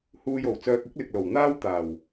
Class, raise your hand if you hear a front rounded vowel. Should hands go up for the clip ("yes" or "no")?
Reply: yes